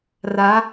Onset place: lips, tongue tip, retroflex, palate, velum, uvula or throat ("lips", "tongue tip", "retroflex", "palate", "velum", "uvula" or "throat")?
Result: tongue tip